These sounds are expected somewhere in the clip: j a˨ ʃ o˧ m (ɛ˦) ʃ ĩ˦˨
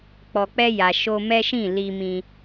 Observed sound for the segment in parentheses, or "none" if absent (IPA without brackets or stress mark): ɛ˦